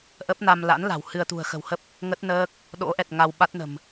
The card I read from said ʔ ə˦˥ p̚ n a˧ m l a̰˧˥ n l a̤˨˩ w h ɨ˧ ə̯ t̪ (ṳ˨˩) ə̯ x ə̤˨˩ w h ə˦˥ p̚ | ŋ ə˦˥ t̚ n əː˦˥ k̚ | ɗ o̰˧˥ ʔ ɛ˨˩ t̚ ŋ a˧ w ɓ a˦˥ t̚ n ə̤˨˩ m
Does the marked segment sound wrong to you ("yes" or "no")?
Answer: no